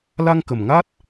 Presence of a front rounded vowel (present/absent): absent